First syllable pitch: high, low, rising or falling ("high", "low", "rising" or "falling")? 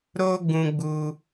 high